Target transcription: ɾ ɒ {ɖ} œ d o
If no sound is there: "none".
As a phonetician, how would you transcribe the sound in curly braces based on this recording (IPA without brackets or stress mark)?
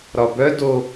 b